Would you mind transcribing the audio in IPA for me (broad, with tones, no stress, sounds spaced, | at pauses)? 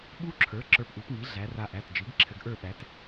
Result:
ɓ u˦˥ ǁʰ ə˞˩˥ ǁ ə˞˧ p ʔ u˩˥ p ŋ i˩˥ ɮ æ˩˧ r a˧ ʔ æ˩˧˩ t d͡ʒ i˩˥ ɡ ǁʰ ɘ˧ ɡ ʔ ə˞˥˧ ɓ æ˩˥ t